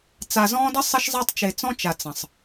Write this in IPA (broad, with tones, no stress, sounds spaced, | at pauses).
t͡s a˨ z ɔ̃ː˦ d ə˦ sˤ ə˦ ʃ zˤ a˦ tˤ t͡ʃ e˨ t͡s ɔ̃˦ t͡ʃ a˨ t͡s ə̃˨ sˤ